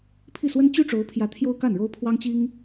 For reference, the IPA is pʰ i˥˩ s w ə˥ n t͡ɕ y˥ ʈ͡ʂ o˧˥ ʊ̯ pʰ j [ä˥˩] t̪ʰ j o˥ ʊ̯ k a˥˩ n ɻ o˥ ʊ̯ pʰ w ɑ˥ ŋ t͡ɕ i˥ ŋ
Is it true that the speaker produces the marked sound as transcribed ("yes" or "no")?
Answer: no